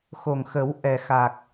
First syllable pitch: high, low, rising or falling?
low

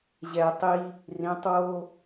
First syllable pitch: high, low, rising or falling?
low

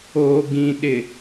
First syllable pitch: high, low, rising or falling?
low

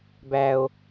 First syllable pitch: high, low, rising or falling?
low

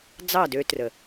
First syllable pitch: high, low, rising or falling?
falling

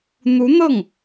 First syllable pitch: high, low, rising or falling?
rising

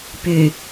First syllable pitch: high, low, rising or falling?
low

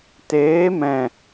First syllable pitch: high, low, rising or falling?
rising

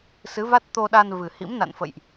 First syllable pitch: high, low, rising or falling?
rising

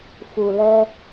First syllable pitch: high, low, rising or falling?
low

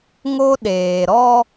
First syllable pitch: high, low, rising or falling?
high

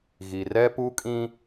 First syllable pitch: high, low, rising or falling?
low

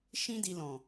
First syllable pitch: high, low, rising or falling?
high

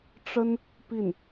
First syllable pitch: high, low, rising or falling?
high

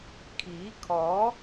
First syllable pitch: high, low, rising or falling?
rising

